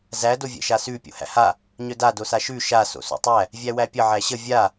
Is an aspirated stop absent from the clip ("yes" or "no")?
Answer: yes